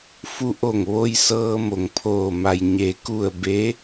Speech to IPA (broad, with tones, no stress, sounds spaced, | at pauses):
f u˧ ʔ o˧˩ ŋ ʋ o˧ j s ɤː˧ m o˩ ŋ pʰ oː˧˩ m a˩ j ɲ e˩˧ k u˧˩ ə̯ b e˧˥